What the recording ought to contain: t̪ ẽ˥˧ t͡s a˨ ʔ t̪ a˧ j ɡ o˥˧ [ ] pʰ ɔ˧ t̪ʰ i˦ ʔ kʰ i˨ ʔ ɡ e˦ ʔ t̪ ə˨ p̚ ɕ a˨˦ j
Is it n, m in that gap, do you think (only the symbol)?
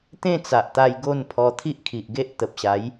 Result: n